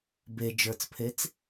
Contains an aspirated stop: yes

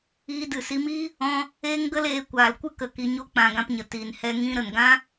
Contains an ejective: no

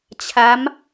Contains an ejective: no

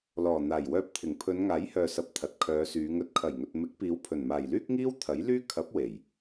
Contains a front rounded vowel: yes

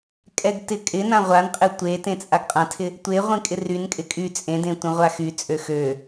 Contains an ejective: yes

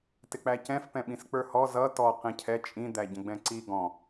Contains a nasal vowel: yes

